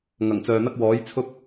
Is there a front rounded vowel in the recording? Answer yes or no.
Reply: yes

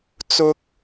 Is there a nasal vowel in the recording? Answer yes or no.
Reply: no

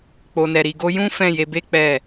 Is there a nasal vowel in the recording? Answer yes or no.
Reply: yes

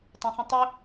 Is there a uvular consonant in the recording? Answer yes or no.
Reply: yes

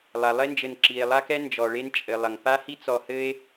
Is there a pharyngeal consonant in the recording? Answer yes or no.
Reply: no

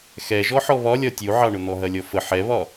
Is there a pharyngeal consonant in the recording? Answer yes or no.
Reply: yes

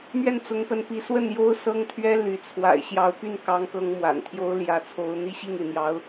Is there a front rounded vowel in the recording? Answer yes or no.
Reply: yes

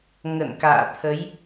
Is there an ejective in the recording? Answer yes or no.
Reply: no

